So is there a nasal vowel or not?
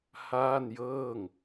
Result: no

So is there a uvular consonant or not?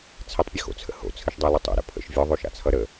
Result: no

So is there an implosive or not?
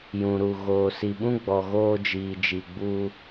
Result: yes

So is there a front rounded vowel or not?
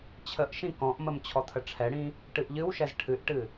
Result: no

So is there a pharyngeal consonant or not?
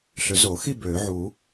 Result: yes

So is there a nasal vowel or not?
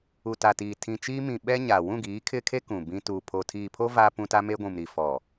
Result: yes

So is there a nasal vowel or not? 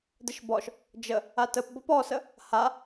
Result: no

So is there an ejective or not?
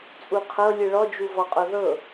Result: yes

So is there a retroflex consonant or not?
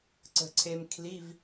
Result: no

